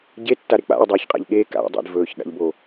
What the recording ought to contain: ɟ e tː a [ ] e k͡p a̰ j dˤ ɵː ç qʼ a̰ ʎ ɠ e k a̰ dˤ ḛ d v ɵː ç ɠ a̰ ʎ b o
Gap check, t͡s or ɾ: ɾ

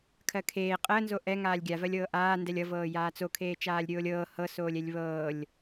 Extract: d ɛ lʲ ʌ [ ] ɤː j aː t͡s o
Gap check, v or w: v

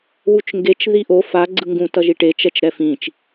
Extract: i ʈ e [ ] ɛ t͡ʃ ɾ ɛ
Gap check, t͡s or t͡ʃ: t͡ʃ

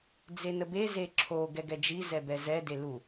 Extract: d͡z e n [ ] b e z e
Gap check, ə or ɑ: ə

